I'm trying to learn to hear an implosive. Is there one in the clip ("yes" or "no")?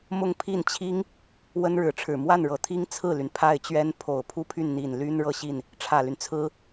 no